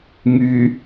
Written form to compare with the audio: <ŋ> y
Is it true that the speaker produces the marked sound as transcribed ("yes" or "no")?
yes